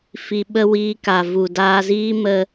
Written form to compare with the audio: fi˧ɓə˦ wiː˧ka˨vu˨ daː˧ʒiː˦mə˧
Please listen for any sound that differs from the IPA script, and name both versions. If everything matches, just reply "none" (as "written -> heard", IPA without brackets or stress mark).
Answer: ʒ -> z